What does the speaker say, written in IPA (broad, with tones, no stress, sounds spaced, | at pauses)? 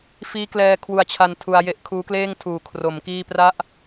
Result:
f iː˦˥ k l ɛː˧ kʰ w u˧ a̯ t͡ɕʰ a˧ n tʰ u˧ a̯ j e˦˥ ʔ kʰ uː˦˥ k l eː˥˩ ŋ tʰ uː˨˩ kʰ r o˩˦ m k iː˥˩ p r a˦˥ ʔ